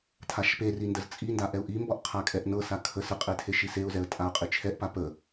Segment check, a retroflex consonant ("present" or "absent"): absent